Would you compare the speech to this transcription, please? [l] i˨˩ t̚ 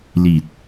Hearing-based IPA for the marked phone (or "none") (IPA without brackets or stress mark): l